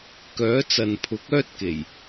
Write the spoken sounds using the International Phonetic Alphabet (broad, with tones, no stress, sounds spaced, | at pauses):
k œː˨˥ t͡s ɐ˨ n pʰ ʊ˨˥ k̚ œː˥ t̚ k e˨˩ j